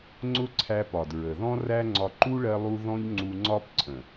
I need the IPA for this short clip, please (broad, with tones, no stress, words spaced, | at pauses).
ŋ͡ǀʊ˦ǀʰæ˧pɒ˨d ɹə˨ðɔ̃˦ ræ˦ŋ͡ǀɒ˧ ǃu˦ɭɜ˧lˠu˧ ðɔ̃˦ʎŋ͡ǀu˧ŋ͡ǀɒ˦pǀʰə̃˨